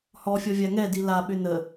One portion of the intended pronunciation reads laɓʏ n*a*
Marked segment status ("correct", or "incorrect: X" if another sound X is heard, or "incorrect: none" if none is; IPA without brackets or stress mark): incorrect: ə